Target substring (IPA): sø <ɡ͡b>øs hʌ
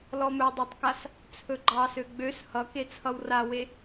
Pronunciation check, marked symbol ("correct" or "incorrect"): correct